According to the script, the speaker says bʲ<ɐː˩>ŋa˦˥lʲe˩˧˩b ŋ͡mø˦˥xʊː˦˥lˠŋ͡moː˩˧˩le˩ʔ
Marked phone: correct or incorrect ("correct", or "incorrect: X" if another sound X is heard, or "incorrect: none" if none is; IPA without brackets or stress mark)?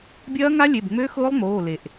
incorrect: ɐː˦˥